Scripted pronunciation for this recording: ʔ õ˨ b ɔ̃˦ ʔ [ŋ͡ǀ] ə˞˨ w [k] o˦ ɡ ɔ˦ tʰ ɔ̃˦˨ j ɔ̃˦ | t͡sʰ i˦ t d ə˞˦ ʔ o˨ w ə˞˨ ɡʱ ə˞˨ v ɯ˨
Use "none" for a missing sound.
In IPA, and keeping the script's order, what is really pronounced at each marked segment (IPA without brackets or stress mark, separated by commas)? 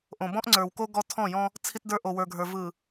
ŋ͡ǀ, k